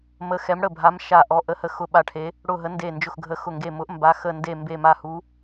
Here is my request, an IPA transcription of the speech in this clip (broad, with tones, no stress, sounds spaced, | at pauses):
m ə˨˦ x ɛ˨˦ m ɽ ə˧˩ bʱ a˨˦ m ʃ a˧˩ ʔ ɔ˨˦ ʔ ə˨˦ h ə˧˩ x ʊ˧˩ ɓ a˧˩ ʈʰ e˨˦ | ɽ ʊ˧˩ ɦ ə˨˦ n d e˧˩ n d͡ʒ ʊ˧˩ x ɡʱ ə˨˦ x ʊ˧˩ ŋ ɡ e˧˩ m ʊ˨˦ ʔ m b a˨˦ x ə˧˩ n d e˧˩ m b e˧˩ m a˧˩ h u˨˦